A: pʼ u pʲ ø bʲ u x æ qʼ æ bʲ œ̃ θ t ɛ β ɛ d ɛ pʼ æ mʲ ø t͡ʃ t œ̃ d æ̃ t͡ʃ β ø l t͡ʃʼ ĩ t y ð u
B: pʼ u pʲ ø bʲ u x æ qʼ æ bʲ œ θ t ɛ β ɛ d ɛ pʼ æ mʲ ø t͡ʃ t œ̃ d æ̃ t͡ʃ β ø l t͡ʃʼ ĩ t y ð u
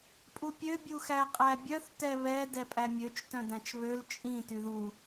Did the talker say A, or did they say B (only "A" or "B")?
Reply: B